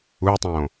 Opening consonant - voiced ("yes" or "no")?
no